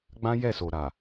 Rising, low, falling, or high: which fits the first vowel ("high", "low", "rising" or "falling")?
high